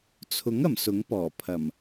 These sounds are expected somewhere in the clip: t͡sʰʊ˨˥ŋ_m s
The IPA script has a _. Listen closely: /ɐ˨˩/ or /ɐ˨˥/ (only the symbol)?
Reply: ɐ˨˩